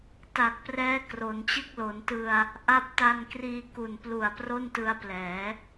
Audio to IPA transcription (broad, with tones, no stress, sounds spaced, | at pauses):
t a˨˩ k̚ p r ɛː˦˥ k r o˩˦ n t͡ɕ ɯ˥˩ k̚ l o˩˦ n t ɯ˧ a̯ | ʔ a˦˥ p̚ t a˧ n k r iː˧ k u˨˩ n p l u˨˩ a̯ p r o˥˩ n t ɯ˧ a̯ p l ɛː˩˦